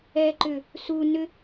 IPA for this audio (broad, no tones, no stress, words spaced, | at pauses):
ɛːǃʏ | su nʏ